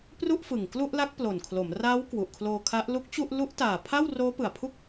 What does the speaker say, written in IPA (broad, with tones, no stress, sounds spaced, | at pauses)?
p r u˥˩ ʔ f ɯ˨˩ ŋ k l u˥˩ ʔ l a˦˥ k̚ p l o˨˩ n kʰ l o˩˦ m r aː˦˥ w k w u˨˩ ʔ kʰ l oː˧ kʰ a˦˥ ʔ l u˦˥ k̚ t͡ɕ u˥˩ ʔ l u˦˥ ʔ t aː˨˩ pʰ a˥˩ w r oː˦˥ p ɯ˨˩ a̯ pʰ u˥˩ k̚